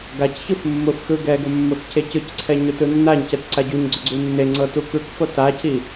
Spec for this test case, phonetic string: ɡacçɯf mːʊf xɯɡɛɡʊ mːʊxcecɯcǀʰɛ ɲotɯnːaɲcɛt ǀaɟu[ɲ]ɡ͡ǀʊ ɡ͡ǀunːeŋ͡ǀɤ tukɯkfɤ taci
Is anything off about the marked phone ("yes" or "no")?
no